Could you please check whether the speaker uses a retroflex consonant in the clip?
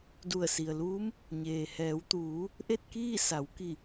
no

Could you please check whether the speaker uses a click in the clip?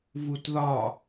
no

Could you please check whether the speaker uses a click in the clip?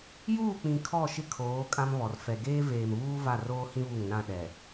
no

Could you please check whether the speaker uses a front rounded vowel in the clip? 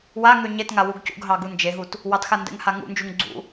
yes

